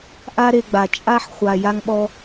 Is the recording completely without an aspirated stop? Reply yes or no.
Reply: yes